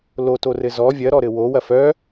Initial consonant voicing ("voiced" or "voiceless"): voiced